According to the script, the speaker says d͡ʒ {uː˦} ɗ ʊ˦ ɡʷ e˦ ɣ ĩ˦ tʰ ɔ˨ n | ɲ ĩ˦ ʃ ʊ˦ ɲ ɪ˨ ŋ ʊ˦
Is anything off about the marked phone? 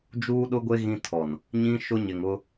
no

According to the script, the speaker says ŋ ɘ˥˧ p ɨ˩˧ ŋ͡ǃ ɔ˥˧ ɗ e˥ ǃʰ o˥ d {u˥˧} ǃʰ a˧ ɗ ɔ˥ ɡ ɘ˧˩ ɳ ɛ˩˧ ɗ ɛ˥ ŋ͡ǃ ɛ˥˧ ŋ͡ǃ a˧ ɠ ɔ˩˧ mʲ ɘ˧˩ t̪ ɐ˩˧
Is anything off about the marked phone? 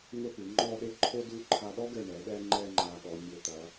no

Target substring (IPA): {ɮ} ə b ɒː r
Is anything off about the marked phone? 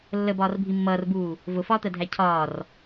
yes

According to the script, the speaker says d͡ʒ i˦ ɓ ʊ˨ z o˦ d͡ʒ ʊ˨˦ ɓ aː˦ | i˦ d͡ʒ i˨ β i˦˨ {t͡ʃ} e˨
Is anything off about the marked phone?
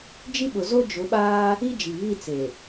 yes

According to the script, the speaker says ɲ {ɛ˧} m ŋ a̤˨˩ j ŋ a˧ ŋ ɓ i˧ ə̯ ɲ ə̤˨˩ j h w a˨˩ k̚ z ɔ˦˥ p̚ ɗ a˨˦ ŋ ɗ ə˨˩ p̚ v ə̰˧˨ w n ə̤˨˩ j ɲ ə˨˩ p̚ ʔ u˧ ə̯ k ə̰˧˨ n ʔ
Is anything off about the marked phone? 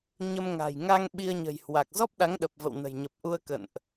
yes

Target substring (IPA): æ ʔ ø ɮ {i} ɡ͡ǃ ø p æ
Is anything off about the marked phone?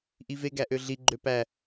no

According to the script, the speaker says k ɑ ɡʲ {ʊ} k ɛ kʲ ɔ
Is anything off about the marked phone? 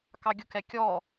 no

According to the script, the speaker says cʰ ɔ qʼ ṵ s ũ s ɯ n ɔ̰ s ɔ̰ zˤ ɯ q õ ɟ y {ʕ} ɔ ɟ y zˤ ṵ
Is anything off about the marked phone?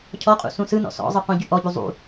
yes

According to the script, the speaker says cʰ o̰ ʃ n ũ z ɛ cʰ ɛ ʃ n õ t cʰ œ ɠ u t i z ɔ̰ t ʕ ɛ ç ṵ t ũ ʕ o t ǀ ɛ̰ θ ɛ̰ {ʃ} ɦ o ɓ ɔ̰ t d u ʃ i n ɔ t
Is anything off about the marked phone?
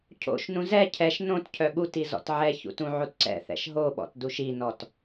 no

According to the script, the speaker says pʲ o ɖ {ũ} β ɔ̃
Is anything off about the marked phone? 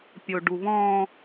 yes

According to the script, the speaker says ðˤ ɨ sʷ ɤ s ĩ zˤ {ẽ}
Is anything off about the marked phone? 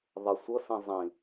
yes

